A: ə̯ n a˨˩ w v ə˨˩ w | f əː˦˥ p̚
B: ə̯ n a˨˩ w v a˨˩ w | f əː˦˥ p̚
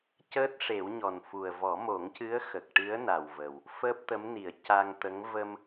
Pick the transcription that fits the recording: A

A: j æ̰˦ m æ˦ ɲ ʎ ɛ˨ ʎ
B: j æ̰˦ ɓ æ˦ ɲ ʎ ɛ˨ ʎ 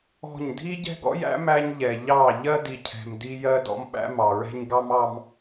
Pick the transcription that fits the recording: A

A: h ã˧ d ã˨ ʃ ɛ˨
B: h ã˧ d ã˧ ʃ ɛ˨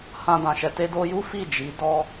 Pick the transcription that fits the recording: A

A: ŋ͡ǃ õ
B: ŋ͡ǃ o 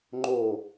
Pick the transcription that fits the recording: B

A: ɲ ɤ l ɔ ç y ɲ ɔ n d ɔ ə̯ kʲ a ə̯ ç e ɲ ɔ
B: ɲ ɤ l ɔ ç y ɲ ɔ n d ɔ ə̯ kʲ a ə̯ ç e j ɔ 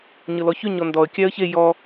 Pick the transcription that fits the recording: B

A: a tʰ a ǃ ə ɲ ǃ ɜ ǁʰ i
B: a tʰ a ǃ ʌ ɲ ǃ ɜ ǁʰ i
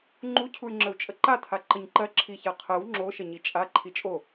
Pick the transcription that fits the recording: A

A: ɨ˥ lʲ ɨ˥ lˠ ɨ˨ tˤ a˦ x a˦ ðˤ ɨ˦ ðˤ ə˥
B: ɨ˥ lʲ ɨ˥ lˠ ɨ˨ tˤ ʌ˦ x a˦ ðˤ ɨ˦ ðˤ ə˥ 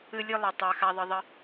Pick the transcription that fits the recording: A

